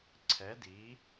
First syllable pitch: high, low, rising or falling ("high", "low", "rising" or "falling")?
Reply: rising